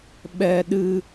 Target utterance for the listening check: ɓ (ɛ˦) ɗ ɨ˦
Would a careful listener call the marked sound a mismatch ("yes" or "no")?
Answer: no